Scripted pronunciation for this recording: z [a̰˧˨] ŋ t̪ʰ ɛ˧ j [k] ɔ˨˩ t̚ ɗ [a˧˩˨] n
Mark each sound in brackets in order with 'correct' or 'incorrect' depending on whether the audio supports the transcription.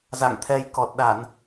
correct, correct, correct

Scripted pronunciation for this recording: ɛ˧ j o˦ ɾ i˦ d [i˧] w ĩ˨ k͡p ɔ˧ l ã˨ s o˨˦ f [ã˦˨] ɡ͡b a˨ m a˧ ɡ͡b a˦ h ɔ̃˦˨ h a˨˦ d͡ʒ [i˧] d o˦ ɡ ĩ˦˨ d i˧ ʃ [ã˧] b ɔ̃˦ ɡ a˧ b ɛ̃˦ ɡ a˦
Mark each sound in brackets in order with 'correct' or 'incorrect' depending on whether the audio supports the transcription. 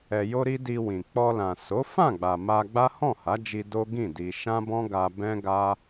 correct, correct, correct, incorrect: ã˦

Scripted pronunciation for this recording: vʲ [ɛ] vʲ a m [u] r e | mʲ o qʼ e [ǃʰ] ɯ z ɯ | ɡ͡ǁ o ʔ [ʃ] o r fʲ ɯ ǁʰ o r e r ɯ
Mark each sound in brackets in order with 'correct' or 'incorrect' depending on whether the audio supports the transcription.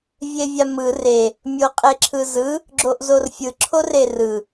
incorrect: e, incorrect: ɯ, incorrect: ǁʰ, incorrect: z

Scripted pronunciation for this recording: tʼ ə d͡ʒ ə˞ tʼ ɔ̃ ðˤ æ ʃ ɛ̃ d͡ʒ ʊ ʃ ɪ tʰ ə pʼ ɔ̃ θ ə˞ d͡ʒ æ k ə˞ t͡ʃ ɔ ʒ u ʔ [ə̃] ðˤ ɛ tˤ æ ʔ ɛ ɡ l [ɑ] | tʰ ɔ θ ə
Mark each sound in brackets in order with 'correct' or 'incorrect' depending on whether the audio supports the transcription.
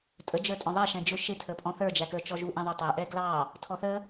incorrect: ɛ̃, correct

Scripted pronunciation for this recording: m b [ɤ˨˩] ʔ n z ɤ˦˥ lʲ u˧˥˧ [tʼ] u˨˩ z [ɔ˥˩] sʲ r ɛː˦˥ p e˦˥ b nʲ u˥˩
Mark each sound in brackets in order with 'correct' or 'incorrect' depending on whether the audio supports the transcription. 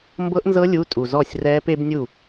incorrect: ɤ˦˥, correct, correct

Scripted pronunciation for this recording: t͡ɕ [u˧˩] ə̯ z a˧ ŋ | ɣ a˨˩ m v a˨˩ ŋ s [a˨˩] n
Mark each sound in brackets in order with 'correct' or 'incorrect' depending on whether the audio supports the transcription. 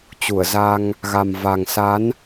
correct, incorrect: a˨˦

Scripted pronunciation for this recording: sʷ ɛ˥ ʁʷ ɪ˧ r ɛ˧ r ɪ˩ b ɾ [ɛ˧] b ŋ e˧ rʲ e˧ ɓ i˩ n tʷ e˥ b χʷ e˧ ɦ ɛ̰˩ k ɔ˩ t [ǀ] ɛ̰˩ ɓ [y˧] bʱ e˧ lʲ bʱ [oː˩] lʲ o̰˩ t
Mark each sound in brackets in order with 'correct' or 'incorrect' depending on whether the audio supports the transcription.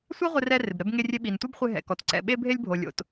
correct, correct, incorrect: e˧, incorrect: o˩

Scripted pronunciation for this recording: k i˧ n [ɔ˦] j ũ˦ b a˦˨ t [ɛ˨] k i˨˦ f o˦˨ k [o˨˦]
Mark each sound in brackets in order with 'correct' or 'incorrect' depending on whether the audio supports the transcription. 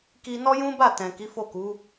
correct, incorrect: ɛ̃˨, incorrect: u˨˦

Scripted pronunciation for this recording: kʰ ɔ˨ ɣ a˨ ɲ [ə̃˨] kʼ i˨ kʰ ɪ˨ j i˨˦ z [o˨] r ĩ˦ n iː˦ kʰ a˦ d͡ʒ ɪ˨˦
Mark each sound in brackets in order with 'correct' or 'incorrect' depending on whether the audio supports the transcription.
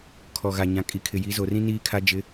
incorrect: ã˨, correct

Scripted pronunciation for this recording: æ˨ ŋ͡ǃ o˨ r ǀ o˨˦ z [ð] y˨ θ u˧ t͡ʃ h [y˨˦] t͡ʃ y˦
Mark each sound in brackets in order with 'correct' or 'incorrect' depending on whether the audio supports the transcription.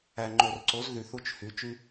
correct, correct

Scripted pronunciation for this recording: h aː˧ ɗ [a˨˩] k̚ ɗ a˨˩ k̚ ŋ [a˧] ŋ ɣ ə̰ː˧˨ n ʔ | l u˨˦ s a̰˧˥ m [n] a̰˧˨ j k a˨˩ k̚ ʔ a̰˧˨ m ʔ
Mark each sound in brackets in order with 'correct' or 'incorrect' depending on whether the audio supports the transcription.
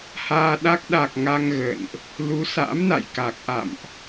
incorrect: a˦˥, correct, correct

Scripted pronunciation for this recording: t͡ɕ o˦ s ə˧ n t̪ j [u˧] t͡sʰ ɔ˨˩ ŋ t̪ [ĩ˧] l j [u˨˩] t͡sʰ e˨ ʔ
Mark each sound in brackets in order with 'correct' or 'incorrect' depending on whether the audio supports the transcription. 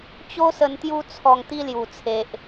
correct, incorrect: i˧, correct

